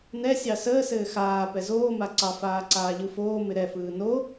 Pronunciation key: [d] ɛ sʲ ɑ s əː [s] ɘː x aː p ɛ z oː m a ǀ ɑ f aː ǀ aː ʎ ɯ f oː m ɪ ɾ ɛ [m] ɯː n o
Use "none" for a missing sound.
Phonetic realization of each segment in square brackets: n, s, f

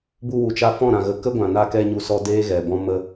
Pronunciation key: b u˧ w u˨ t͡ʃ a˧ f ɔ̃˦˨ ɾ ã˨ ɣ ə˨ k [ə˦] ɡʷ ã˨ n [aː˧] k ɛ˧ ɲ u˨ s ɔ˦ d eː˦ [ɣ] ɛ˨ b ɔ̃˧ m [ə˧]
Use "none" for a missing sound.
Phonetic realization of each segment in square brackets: ə˦, a˧, ɣ, ə˧

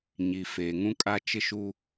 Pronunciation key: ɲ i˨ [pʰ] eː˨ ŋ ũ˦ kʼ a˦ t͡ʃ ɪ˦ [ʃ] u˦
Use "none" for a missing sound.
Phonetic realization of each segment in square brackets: f, ʃ

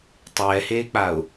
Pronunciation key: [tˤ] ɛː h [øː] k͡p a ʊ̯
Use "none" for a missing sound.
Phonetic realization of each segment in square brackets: tˤ, eː

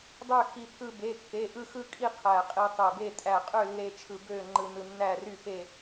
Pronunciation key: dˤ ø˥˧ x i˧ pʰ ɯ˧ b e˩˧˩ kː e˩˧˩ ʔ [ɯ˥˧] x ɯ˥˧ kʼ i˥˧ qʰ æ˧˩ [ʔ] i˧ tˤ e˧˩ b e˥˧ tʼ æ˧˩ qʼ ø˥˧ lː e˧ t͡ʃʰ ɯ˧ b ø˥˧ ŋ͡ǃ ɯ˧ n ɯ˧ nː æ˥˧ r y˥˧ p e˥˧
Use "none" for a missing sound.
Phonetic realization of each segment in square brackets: ɯ˥˧, qʼ

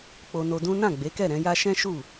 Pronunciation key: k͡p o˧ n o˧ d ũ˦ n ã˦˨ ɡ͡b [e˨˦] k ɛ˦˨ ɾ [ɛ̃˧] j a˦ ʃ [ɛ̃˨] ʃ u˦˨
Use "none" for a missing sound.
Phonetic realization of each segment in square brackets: e˨˦, ɛ̃˨˦, ɛ̃˦

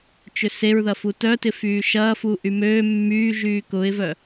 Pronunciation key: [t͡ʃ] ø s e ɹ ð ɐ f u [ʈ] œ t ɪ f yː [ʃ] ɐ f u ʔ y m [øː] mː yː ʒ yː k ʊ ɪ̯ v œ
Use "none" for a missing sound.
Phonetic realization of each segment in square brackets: t͡ʃ, t, ʃ, øː

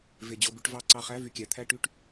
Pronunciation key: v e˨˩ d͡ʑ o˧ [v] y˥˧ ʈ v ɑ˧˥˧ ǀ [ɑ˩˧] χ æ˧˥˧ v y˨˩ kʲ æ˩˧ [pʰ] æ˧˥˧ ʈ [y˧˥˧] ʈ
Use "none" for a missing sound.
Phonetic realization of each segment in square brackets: b, ɑ˧, t̪ʰ, y˥˧

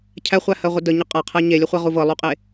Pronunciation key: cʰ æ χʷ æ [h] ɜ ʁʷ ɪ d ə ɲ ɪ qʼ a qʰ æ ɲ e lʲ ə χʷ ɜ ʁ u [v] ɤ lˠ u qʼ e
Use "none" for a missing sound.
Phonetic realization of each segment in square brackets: h, v

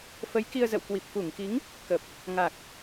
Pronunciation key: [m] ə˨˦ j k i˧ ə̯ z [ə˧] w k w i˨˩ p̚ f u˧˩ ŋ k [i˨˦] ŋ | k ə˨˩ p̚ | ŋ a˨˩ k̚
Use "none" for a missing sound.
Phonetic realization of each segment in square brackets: f, ə̰˧˨, i˨˦

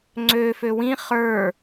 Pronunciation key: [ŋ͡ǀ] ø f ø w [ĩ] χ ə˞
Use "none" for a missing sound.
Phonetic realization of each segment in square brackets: ŋ͡ǀ, ĩ

